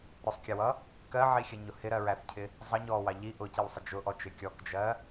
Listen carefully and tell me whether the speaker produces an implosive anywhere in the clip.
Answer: no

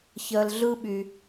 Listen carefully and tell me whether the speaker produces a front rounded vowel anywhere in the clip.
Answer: yes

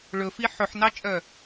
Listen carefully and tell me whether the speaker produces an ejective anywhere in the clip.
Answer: yes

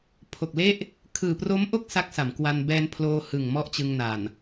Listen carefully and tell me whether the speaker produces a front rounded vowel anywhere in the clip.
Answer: no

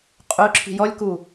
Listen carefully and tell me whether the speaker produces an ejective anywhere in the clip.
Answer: yes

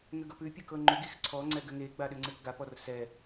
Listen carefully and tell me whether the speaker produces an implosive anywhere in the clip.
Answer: yes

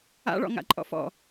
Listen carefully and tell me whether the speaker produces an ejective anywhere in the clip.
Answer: yes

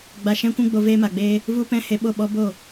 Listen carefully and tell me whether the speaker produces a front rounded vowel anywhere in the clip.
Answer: no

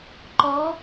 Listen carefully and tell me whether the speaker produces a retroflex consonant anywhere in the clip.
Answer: no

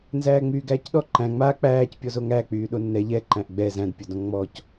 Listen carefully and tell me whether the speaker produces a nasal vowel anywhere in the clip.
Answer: yes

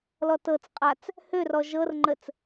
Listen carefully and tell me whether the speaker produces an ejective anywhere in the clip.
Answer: yes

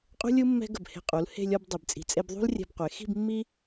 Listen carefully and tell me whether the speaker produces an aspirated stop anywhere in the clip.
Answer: no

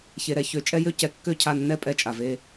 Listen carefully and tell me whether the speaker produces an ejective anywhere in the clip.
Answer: yes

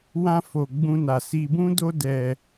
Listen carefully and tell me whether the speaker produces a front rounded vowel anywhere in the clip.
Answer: no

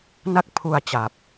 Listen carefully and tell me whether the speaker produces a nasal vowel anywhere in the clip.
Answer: no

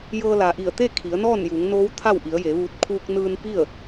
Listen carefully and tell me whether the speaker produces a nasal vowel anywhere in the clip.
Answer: no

